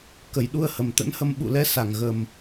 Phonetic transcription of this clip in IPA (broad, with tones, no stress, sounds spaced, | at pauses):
k ə˨˩ j ɗ u˧ ə̯ h ə˨˩ m t̪ ə̰˧˥ n h ə˧ m ɓ ṵ˧˨ l ɛ˨˦ s a˧˩ ŋ ɣ ə˨˩ m